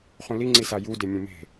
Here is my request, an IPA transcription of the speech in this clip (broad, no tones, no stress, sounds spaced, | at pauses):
χ ũ l i ŋ͡ǀ i s a j u d e mʲ ũ m e̤